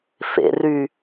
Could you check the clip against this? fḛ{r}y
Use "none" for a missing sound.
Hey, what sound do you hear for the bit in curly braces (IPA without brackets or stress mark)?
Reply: r